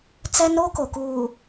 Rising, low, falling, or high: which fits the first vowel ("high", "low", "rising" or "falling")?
high